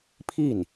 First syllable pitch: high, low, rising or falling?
falling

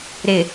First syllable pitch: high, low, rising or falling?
low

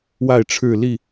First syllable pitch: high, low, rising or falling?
falling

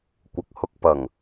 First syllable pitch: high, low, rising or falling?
low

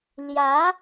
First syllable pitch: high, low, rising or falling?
rising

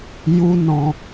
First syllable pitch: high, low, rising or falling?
high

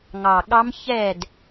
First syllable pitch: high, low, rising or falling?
low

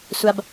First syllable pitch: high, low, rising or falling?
low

